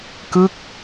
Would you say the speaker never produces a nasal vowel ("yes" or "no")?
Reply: yes